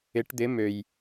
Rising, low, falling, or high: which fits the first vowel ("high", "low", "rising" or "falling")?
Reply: rising